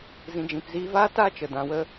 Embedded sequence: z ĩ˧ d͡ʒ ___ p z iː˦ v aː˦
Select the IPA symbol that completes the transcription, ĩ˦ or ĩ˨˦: ĩ˨˦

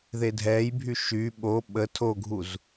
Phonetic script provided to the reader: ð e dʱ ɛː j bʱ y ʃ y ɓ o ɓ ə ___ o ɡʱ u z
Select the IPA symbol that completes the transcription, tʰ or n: tʰ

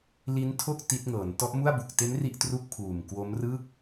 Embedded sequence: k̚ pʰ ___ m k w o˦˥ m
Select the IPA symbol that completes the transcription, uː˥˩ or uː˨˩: uː˨˩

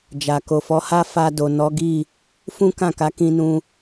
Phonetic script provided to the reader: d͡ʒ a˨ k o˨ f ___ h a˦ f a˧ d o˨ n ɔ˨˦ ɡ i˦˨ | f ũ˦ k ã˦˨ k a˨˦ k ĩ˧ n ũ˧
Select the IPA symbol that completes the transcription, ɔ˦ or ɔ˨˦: ɔ˨˦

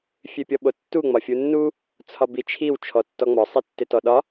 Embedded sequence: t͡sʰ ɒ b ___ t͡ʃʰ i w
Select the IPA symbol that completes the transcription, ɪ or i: i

